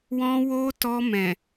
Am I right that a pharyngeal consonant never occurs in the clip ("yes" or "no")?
yes